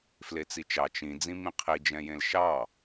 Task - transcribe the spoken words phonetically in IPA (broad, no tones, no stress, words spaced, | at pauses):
flet͡sit͡ʃɑ t͡ʃĩ d͡zĩmĩqʰi d͡ʒɛ̃jẽlʃɑ